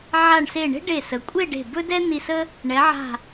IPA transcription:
ʕ a˧˩ ɳ s e˧˩ ɳ e̤˥ ɖ e˧˩ s ə˩˧ kʷʼ e˥˧ ɖ e̤˧˩ b ɵ˥ d ɛ˥ n̪ i˧ s ə˥ | ɳ ɛ˩˧ ʕ a̤˧˩

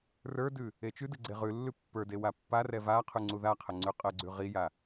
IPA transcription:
r ə˞ d ʉ | e t͡ʃ ʉ d ɨ ɡ͡ǀ e ʁ ʉ lː ʉ pː ə˞ d e w a pː a r ɛ v a qʰ ʉ ŋ͡ǀ u ð a qʰ ə ŋ͡ǀ ʉ qʼ ə ɡ͡ǀ ʉ ʁ i j a

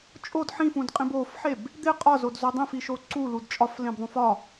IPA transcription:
t͡ʃʼ o d ħ ĩ f ũ d qʼ ĩ b o f ħ e b | d̪ e qʼ ɒ z o d z o dˤ ẽ f i ʃ o ǀ u l u d t͡ʃʼ ɒ f l ẽ b ðˤ ũ f ɒ

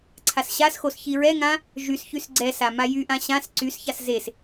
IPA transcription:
ǀʰ a s ɕ a s x o s ç i ɹ ɛ ŋ ã | ʒ y s ç y s ɡ͡ǀ ɛ s a m a j y ʔ ã ɕ ã s ǀ y s ç a s z e s

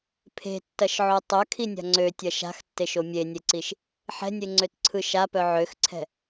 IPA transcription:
pʰ e̤ tː ɐ ʃ ʕ o tˤ œ kʰ i nʲ a̤ ŋ͡ǀ ø tʲ ɐ ʃ a̤ x tː e ʃ o mʲ e nʲ e ǀ i ʃ | ħ ɛ̤ nʲ e ŋ͡ǀ ø t ǀʰ ɯ ʃ a p œ ʕ ø x ǀʰ ɛ̤

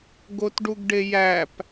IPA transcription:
ɡ o t ɖ u ɡ ɖ e j æ p

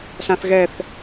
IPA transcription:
ɬ ã θ ɣ ɛ θ

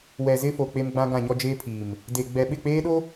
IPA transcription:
w ɛ˨ z ɪ˦ f o˨ k͡p e˦ m ɡ͡b ã˦ ɡ ã˦˨ ɲ ɔ˦ d͡ʒ eː˦ pʰ iː˨ m | d e˨ ɡ͡b ɛ˨ ɓ ɪ˦˨ k͡p eː˦ ɗ o˦

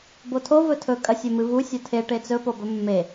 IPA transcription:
b o tʰ o v ɵ tʰ ɵ kʼ ɐ sʲ ɵ m ɨ v u sʲ o tʰ e ʈ e t͡s ɵ p o b ɵ mː e

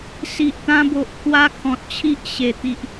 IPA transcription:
s i˨ ʔ t̪ ã˧ b o˨ ʔ kʰ w a˧ kʰ ɔ̃˨ t̚ t͡ɕʰ i˦ ʔ ɕ e˨˩ t̪ i˨ ʔ

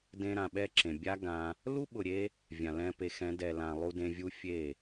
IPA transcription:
d ẽ˧ ɾ ã˧ ɓ ɛ˦ ǁ ẽ˨ bʲ a˦ ɡ ã˧ | l u˦ ɓ ʊ˨ ɾʲ e˧ | vʲ ã˨ l ɛ̃˧ p e˨˦ x ɛ̃˨˦ d ɛ˨ l ã˨ lˠ u˧ d ẽ˧ vʲ u˦ fʲ e˦˨

